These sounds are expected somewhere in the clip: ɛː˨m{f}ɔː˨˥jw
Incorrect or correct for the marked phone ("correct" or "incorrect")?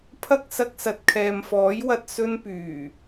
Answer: correct